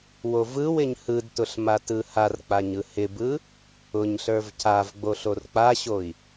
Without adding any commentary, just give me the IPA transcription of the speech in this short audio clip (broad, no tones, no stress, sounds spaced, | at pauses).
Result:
w o v ɯ w ɪ ɲ h ɯ d t ʊ ɬ m a t ɯ h a r k͡p a ɲ ɯ h ɪ b ɯ | ʊ ɲ ɬ ə˞ v c a v ɡ͡b o ɬ o r k͡p a ɕ o i̯